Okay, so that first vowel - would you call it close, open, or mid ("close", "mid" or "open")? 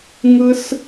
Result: close